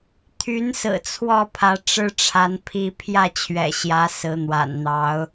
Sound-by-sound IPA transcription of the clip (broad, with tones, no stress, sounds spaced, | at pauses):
t̪ʰ y˨˦ n s ɹ̩˨˩ t͡sʰ w ɔ˥˨ pʰ ä˨˦ ʈ͡ʂ ɻ̩˦ ʈ͡ʂʰ a˨˦ n pʰ i˦ pʰ j ä˥˨ t͡ɕʰ ɥ ɛ̰˨˩ ɕ j ä˨˦ s ɹ̩˨˦ n̪ w a̰˨˩ n n̪ ɑ˨˦ ʊ̯